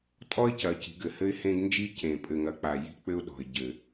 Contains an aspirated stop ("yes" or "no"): no